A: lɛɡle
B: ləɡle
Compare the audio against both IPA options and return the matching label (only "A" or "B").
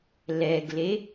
A